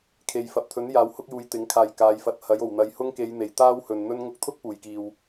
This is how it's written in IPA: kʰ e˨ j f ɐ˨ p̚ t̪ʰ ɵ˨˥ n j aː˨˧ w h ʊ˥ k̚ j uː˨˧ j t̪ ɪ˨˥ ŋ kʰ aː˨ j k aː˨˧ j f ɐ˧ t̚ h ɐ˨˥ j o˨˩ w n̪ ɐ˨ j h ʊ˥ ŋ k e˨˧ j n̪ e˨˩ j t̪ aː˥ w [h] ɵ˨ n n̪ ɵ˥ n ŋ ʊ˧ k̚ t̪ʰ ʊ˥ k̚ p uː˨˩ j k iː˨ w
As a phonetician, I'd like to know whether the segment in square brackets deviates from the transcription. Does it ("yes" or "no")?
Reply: no